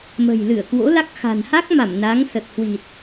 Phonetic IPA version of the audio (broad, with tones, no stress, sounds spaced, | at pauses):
m ə̤˨˩ j l ɨ˧˩ ə̯ k w o̰˧˥ l a˦˥ k̚ x a̤˨˩ n h a˦˥ k̚ m a˧˩ m n a˨˦ ŋ s ə˨˩ t̚ h w i˨˩ t̚